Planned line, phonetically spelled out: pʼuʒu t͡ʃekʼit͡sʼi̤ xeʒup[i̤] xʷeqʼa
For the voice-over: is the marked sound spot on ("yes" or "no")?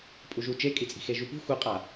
yes